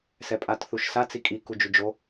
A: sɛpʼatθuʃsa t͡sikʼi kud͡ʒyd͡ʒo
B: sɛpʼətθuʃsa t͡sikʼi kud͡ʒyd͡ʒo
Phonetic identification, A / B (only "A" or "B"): A